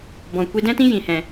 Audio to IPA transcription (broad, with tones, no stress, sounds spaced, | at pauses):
b ɔ̃˨ kʷ i˧ d ɛ̃˦ t ĩ˦ j ĩ˨ h ɛ̃˨